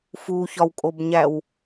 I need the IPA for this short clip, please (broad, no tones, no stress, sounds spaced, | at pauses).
f u ç ɒ w kʼ o b ɲ æ w